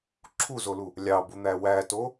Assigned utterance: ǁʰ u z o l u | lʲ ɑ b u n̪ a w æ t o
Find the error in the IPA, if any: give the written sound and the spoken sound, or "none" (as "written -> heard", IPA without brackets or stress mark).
a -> æ